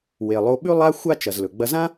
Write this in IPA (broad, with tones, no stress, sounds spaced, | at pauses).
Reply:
w e˩ lˠ o˧ ɓ ʉ˥ lˠ a˥ xʷ a˥ t͡ʃ ɐ˩ z l ɵ˩ ɡ͡b ɐ˧ z ã˥